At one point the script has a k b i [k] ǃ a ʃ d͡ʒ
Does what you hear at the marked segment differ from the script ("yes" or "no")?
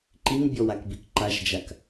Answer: no